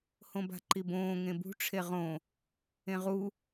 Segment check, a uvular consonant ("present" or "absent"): present